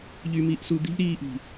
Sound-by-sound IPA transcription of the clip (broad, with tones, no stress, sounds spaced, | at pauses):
ʎ y˧ m i˧ ʔ s u˧ d̪ i̤˦ ʎ ɾ iː˧ ʔ i̤˨